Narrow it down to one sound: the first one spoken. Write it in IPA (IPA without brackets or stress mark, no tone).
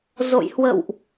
z